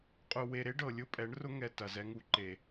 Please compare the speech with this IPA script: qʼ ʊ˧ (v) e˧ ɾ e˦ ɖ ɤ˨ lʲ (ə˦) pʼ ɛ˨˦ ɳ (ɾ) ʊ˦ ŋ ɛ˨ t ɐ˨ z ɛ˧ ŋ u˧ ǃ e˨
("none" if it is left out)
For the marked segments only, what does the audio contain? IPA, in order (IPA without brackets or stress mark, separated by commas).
w, ʊ˦, r